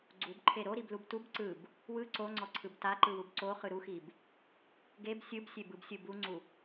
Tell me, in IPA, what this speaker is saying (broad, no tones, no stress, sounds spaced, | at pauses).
ɡ͡ǀ u b ǃʰ e ɾ o ɾ i b l u b t u b ǀ ɯ b | w ɯ ǀ o ŋ͡ǀ ɔ ǀʰ ɯ b t a ǃ ɯ w u b ǀ o χ ɯ ɾ u x i b | ɡ e b sʲ ɯ b sʲ e b ɯ b sʲ ɯ b u ŋ͡ǀ u